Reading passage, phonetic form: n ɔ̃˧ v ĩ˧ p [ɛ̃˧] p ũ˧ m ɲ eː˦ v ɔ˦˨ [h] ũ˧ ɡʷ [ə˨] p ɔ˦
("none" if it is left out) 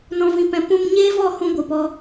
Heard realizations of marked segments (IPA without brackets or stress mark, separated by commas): ɛ̃˧, h, ɨ˨